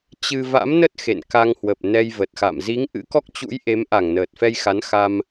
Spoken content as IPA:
t͡ɕ ɨ˧ v a̰˧˥ m n ə˦˥ t̚ x ḛ˧˨ n k a˧ ŋ h w ə˨˩ p̚ n ɛ˧ j v ə˨˩ t̚ x a̰˧˨ m z i˨˦ ŋ ʔ ɨ̰˧˥ k ɔ˦˥ k̚ t͡ɕ ṵ˧˥ j ʔ e˨˦ m ʔ a˧˩ ŋ n əː˨˩ t̚ f ɛ˧ j x a˨˦ n x a˧ m

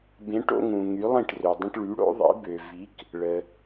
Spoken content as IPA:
b ẽ˨˥ ʈ o̰˦ ŋ ũ˨ ŋ y˨˥ lˠ ĩ˥˩ ʈ r ø˨ dˤ ə̃˦ ʈ ɭ y˨˥ ɽ o̰˨˥ ðˤ ḭ˨˥ b ø˨ v i˨˥ k | ɭ ə˨

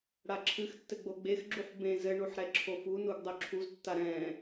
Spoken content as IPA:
ɽ a ǁʰ ɨ x tː ɘ ɡ͡b o ɡ͡b e x ɡ͡ǁ u ħ b ẽ z ɘ ɳ u ħ ɾ ɛ ǁʰ o f u n u ɡ dˤ o ǁʰ u z tː a ɾ ɛ̃

